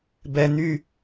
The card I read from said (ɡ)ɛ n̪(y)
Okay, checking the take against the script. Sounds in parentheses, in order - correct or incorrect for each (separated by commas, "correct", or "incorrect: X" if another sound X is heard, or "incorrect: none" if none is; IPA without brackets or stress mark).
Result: incorrect: b, correct